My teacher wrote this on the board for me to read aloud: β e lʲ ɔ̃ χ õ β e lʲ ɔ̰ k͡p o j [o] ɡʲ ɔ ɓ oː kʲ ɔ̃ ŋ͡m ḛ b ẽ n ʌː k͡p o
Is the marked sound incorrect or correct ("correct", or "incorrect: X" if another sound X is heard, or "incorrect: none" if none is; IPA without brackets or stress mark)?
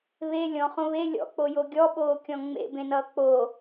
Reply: correct